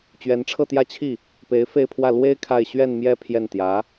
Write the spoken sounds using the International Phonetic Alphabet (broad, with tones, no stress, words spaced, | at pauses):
t͡ɕɥɛ˧˥nʈ͡ʂʰɤ˥˧t̪jä˥˧t͡ɕʰi˥˩ | pe˧˥ɪ̯fe˥˧ɪ̯pʰwä˥˩ lwe˥ɪ̯ kʰa˥˧ɪ̯ ɕɥɛ˥˧nmjɛ˥˧ pʰjɛ˥˩nt̪jä˧˥